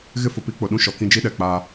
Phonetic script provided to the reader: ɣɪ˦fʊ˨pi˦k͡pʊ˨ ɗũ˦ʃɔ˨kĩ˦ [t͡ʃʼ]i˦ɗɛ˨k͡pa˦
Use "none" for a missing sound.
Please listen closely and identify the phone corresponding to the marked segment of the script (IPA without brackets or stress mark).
d͡ʒ